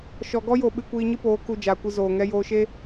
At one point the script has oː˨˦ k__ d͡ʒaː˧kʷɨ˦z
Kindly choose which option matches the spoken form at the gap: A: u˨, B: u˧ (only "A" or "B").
B